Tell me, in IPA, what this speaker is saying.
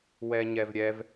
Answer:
wɛɲɛvɾʲɛv

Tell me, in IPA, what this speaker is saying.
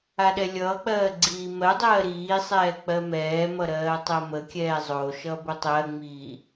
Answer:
aɗɛlʲʌːk͡pɜː ɡ͡ǀiːmɜdˤɜː ɾiːsˤɛː k͡pɜmɛːmʌ ɾɜːtˤɜməkʲɛː zˤo ʃʌbotˤɜŋ͡miː

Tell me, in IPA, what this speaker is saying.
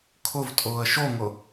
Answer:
kʰʊv tʼʊːə̯ʃoŋʊ

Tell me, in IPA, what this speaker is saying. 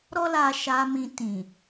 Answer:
ɾɔ˦la˧ʃa˧ mĩ˧tĩ˨

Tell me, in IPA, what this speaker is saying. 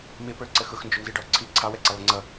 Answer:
mɪpə˞ ǀəxʊx nd͡ʒʊnziɖɔ ǀʰi ǀʰɑwɛǀɛ lˠɪŋ͡ǀʌ

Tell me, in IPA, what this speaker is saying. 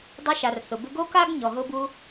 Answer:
dˤɪ˧ʃa˩r θʊ˩bɪ˧ɡo˥ka˥ɡ ɲɔ˩ɦʊ˧bu˧

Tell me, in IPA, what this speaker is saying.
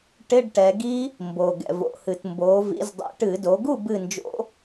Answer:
ʈɪ˧˥˧ɖʈɛ˩˧ɡi˦˥ | mbo˩ ɡɛ̰˩vo̰˩˧hɨ˩t mboː˩˧vḭ˩˧z dˤḭ˩ʈɨ˧˩˧ do˩˧ɡu˥˨ bɨ˥˨nd͡ʒo̰˦˥

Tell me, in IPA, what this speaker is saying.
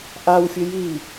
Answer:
ʔawfʲʊ ji

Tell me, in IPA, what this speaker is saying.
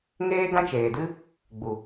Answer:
ŋeː˦ ɡã˦t͡ʃeː˨dɨ˦ | ɡ͡bu˨

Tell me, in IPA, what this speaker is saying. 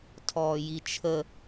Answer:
tʰɔːjit͡ʃʰə

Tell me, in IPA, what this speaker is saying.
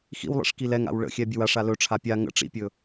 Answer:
xḭwlˠḭʂ kilɛŋa̰w ɭə̰xʲɛ bʲɵwaʂa lɵʈ͡ʂʰa pʲa ŋə̰ ʈ͡ʂḭpʲɵ

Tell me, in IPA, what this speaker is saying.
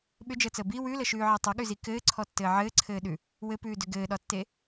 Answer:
ɓʏd͡ʒəːt͡səː bi wʉləʃʉːʕi tˤəɠʉzi kɘːǀʰɔtːɘː ʕɘːǀʰɘːɗʉ | wɘpʉːdʏ ɡɘːɗɒtːe

